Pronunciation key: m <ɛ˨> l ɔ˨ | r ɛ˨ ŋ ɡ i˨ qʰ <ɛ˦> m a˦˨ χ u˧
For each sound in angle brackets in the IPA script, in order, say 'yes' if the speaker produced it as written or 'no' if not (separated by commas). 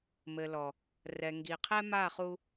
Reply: no, yes